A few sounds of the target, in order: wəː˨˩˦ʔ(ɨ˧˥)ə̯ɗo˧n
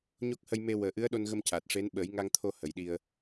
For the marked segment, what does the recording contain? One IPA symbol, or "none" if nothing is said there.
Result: ɨ˧˥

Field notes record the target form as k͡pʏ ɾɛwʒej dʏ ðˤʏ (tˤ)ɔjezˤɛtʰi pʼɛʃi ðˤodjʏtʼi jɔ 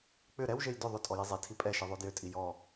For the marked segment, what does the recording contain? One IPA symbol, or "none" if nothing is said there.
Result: tʼ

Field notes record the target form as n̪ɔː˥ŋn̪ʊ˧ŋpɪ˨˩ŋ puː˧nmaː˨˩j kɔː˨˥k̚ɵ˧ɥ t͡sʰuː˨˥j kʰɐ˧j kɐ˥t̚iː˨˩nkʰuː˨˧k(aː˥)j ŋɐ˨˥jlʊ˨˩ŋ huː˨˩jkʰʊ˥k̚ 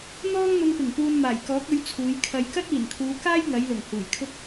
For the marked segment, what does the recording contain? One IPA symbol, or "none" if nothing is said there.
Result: aː˥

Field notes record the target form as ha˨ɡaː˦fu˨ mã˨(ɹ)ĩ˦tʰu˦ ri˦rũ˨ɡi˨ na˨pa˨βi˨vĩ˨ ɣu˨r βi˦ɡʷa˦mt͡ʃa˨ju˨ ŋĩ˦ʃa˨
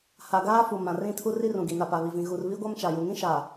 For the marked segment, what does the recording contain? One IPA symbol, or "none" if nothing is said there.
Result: r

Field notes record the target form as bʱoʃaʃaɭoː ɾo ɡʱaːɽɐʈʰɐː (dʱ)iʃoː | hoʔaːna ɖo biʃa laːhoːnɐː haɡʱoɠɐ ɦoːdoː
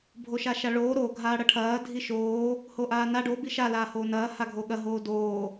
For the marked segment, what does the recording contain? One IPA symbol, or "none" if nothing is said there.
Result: dʱ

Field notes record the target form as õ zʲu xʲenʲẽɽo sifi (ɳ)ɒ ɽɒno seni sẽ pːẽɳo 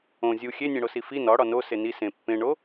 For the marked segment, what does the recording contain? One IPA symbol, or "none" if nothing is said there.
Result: n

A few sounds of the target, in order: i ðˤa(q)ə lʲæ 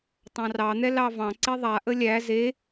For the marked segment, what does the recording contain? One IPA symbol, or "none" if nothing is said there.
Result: ʔ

